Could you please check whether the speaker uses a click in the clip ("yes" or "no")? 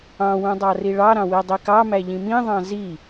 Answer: no